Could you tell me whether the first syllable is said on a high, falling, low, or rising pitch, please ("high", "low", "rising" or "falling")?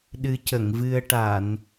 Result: rising